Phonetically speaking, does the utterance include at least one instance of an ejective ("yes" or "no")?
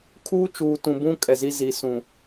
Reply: yes